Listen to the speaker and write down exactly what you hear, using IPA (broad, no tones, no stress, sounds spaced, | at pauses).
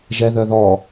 ʒ ɛ ð œ ð ɔ